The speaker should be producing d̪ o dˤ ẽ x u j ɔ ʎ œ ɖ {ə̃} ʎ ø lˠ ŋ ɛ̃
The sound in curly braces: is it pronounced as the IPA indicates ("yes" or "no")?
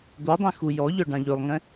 no